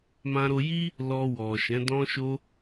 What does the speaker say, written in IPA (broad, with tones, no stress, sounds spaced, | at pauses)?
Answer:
m ã˧ ɾ o˧ j i˦ | l ɔ˧ w ɔ˨ ʃ ɛ̃˨˦ d ɔ̃˧ ʃ o˧